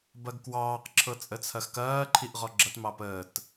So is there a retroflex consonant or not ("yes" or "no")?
no